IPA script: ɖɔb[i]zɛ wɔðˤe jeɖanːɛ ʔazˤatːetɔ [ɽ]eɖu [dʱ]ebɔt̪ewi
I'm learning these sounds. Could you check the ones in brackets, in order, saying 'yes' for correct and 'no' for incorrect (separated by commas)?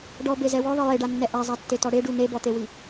no, yes, no